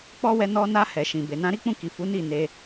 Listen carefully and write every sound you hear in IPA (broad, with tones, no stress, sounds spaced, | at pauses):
k͡p ɔ˦ w ɛ˧ n ɔ˧ n a˧ h ɛ˨ ʃ ĩ˨ b e˨ n ã˧ ɾ i˦ k͡p ũ˦˨ k i˨ f u˨˦ n i˦˨ n e˧